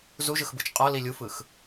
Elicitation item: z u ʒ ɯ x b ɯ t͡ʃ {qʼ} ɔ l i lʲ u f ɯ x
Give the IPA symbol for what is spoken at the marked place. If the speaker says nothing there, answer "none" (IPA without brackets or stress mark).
qʼ